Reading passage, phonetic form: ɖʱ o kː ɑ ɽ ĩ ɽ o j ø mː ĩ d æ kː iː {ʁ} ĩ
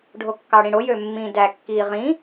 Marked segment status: correct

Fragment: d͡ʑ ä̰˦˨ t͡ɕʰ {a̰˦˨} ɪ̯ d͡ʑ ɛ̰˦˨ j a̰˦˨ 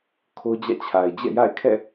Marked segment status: incorrect: a˨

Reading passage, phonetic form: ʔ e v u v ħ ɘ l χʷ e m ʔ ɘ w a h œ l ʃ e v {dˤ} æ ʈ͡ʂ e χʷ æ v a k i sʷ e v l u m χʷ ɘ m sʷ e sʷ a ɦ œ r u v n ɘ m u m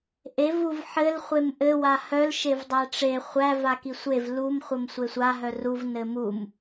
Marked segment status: correct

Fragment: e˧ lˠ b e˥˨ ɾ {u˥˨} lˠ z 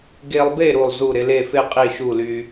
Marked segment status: correct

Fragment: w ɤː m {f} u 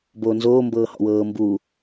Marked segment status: incorrect: b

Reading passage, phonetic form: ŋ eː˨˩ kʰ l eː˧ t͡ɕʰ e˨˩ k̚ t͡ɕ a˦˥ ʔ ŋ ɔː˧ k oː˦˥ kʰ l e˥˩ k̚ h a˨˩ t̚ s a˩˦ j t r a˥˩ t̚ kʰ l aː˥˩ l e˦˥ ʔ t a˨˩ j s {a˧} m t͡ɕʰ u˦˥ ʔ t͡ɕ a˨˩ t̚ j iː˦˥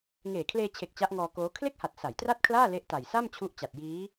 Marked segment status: incorrect: a˥˩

